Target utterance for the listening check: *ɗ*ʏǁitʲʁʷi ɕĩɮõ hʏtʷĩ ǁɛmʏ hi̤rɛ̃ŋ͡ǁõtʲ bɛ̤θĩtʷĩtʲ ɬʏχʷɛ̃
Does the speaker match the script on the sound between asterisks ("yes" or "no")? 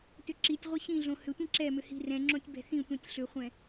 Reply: no